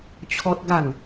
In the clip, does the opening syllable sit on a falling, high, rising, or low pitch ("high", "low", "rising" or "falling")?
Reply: high